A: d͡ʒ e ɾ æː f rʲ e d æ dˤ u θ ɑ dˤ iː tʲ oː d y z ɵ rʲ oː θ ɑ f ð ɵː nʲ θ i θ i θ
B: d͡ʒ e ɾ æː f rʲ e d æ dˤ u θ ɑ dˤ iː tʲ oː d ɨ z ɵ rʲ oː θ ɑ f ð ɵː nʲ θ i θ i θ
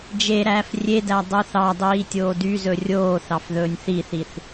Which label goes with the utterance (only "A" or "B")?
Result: A